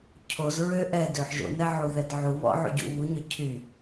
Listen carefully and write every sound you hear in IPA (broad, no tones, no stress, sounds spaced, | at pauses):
cʰ o z ɹ ø ʔ ɛ d ø ħ ʒ o̰ n ɛ ʕ u ð ɛ d ʕ u β ɔ̰ ʕ ṵ ɟ ṵ β u ɲ œ cʰ y